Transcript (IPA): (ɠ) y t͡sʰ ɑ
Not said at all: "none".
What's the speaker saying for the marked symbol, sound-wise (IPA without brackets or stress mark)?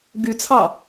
ɡ